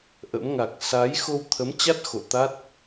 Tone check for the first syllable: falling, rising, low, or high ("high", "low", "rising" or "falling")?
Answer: rising